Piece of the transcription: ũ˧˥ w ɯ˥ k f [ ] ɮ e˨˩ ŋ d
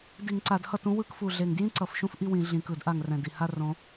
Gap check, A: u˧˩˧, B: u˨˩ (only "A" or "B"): B